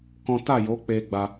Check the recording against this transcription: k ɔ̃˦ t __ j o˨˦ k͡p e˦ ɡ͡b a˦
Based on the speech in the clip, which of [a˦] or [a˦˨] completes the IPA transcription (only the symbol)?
a˦˨